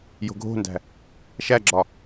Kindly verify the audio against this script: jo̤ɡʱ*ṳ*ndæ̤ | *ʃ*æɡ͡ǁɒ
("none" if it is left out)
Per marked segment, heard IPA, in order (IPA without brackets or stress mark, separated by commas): o̤, ʃ